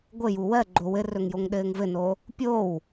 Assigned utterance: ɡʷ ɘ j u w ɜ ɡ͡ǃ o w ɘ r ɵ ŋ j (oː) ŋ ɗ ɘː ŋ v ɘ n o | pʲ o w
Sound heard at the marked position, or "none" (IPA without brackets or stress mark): o